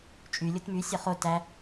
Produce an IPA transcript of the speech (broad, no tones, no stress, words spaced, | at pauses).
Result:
t͡ʃʼy lʲotmy sʲɒχo tæ